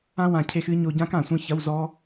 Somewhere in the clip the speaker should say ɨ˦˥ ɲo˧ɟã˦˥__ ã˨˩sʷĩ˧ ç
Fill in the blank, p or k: k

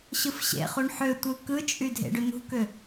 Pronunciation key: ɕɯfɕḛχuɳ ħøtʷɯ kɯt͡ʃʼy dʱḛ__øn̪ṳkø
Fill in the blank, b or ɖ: ɖ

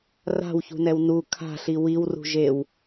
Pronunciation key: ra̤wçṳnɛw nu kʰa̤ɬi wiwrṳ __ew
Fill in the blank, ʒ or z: ʒ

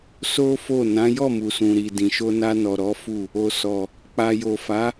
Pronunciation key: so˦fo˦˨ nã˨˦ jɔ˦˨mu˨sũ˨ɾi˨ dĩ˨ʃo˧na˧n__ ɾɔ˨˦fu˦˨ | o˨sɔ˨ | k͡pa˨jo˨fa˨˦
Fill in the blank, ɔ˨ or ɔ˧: ɔ˨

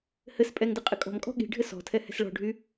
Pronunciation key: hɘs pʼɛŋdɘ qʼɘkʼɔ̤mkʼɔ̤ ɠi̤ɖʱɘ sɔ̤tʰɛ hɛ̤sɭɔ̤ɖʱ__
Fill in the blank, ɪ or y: y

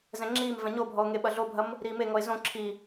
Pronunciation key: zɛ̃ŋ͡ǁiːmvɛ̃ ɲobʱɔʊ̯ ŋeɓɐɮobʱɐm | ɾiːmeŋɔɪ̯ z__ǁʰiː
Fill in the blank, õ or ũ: õ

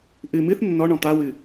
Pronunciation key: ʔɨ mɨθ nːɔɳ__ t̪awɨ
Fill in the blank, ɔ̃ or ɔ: ɔ̃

